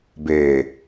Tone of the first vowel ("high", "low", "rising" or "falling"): low